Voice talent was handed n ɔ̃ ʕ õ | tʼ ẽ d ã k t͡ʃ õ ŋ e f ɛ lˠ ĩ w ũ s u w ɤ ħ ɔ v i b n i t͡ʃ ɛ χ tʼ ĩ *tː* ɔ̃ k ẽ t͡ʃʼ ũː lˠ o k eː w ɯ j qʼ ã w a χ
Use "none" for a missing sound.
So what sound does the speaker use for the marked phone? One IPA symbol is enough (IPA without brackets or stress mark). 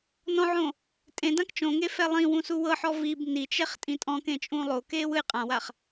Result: tʼ